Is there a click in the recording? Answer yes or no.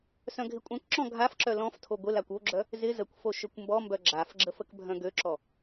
yes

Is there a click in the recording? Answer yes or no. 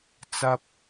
no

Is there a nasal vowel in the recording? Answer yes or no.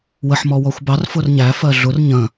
yes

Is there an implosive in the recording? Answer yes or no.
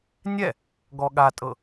yes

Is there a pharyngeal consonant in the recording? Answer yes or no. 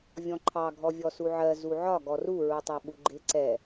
yes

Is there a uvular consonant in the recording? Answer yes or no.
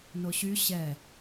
no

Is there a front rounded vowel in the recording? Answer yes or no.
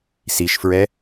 no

